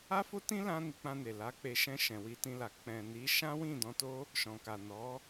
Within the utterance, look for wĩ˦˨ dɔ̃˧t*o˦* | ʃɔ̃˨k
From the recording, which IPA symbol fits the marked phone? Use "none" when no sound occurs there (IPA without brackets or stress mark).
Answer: o˦